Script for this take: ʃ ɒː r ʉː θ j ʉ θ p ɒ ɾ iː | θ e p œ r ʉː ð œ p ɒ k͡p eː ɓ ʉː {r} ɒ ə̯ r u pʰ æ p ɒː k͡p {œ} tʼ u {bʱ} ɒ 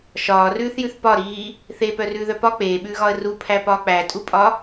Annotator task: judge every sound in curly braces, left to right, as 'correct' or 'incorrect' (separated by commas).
incorrect, incorrect, incorrect